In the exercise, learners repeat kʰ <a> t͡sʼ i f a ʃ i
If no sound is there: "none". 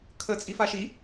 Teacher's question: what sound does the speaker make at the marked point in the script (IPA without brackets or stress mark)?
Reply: ə